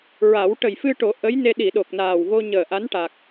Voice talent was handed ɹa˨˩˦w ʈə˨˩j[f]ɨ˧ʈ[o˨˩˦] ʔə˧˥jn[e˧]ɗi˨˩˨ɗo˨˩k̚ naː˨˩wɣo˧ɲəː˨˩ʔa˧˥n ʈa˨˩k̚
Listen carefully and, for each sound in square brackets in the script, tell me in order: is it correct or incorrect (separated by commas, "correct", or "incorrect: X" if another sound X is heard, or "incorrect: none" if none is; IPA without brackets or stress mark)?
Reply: correct, correct, correct